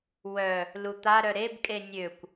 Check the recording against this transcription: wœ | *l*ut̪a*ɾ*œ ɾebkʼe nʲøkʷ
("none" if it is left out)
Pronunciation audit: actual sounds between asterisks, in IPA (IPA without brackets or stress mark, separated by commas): l, ɾ